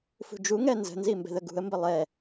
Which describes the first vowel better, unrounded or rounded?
rounded